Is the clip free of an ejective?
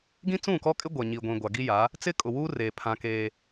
no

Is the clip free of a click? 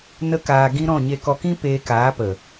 yes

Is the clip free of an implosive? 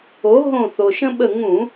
no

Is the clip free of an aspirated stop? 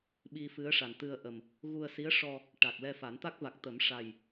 yes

